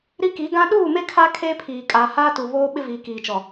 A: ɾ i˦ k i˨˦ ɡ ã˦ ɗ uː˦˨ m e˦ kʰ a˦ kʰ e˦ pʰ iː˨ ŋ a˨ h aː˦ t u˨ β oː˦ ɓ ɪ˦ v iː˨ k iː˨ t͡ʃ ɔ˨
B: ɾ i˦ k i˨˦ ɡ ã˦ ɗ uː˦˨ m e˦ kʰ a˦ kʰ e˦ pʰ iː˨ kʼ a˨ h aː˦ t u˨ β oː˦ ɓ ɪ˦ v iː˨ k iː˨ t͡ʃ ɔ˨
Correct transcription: B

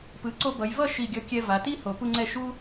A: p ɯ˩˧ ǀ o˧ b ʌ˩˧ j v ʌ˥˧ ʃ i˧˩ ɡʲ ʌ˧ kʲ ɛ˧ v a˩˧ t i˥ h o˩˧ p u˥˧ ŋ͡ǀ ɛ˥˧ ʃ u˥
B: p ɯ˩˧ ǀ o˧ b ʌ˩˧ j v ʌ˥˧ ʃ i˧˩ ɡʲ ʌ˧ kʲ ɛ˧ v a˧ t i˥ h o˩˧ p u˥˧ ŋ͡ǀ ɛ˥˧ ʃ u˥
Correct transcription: A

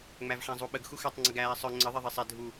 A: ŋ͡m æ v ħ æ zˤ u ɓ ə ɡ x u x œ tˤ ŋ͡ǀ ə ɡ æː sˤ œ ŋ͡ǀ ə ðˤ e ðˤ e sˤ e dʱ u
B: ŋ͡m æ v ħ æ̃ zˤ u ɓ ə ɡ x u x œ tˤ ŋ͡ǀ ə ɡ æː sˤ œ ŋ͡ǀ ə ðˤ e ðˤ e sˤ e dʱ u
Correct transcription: B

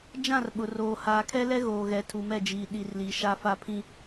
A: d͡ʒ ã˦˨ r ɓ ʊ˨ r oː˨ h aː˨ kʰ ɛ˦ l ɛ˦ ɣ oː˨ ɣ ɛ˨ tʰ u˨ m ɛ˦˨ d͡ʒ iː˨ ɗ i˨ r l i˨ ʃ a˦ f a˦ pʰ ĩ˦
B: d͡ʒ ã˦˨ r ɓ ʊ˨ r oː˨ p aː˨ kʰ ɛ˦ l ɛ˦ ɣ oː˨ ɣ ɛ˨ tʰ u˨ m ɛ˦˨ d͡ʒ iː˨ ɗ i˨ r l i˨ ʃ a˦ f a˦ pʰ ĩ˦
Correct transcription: A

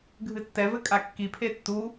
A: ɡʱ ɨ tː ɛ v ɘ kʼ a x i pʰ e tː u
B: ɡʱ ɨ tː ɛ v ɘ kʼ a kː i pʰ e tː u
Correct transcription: B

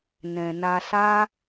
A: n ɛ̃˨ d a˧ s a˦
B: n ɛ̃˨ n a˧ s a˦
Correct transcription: B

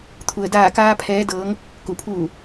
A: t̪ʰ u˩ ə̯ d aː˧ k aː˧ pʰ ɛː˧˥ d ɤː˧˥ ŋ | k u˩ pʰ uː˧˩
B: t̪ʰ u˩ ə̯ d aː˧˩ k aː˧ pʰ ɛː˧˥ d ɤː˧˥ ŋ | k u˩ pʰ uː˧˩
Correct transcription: B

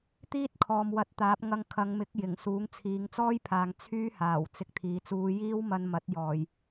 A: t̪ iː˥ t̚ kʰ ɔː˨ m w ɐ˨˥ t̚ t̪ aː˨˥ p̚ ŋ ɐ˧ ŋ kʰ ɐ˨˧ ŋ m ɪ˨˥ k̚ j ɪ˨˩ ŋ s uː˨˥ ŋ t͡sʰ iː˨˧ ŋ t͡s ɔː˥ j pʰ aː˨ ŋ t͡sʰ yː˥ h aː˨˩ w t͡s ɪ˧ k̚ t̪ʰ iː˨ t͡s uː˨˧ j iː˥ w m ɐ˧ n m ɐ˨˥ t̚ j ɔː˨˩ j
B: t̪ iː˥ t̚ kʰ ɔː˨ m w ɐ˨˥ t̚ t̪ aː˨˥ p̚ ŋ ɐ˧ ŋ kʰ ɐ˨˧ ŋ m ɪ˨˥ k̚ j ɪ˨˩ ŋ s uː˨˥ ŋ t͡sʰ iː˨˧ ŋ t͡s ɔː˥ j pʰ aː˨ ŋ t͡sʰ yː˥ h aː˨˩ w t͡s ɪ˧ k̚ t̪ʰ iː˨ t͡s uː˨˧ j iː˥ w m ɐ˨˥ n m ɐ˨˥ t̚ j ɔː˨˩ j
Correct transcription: A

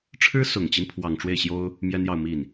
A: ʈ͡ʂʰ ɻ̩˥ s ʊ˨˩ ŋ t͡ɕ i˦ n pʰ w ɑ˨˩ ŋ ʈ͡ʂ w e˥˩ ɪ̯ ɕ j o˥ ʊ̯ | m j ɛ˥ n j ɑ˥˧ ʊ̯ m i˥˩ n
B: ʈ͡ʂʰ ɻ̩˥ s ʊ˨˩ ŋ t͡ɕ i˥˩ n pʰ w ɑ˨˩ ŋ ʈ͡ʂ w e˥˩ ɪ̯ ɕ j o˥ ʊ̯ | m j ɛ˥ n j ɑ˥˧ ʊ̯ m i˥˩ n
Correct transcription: A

